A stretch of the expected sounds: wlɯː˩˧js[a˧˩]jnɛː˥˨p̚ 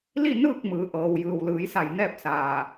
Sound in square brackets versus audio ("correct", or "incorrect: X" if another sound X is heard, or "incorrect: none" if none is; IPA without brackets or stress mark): correct